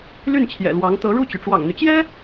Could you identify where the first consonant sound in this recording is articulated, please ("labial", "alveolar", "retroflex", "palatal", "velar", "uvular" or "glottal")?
alveolar